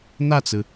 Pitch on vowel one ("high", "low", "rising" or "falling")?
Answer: falling